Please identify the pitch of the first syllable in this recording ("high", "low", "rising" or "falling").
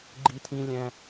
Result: high